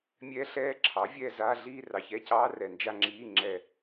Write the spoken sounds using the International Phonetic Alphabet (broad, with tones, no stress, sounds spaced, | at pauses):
mʲ ɛː˦˥ ɬ ɛː˦˥ ǁʰ ɑ˩˥ vʲ ɛː˥˧ z aː˧˥˧ ɮ iː˥˧ r ɑ˨ ç ɛ˧˥˧ c ɑː˦˥ r ɛ˨ n d͡ʒ a˥˧ ŋ͡ǁ iː˧˥˧ ŋ͡ǁ ɛ˨